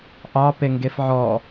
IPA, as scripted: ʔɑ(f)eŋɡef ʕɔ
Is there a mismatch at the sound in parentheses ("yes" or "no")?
yes